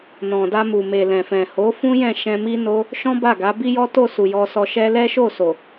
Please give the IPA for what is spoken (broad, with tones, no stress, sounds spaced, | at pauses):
n ɔ̃˨ d a˧ m u˨ m e˨ l ɛ̃˨ f ɛ̃˨ h o˨˦ f ũ˦ j ɛ̃˦˨ ʃ ɛ̃˧ m i˦ n o˦ | ʃ ɔ̃˦ b a˦˨ ɡ a˨˦ b i˦ j ɔ˦ t o˦˨ s u˨ j ɔ˧ s ɔ˧ ʃ ɛ˦ l ɛ˦ ʃ o˦˨ s o˨